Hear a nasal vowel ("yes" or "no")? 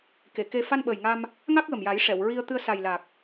no